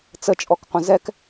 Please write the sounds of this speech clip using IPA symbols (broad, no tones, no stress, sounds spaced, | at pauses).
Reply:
t͡s ə t͡ʃʼ ɔ k qʷ ə̃ z ɛ k